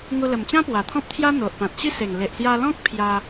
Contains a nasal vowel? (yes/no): yes